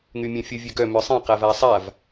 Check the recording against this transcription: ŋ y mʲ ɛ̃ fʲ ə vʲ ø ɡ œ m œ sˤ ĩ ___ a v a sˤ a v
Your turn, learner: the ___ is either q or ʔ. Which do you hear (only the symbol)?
q